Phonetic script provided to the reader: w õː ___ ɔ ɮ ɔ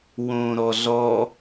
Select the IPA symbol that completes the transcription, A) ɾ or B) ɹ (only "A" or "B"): A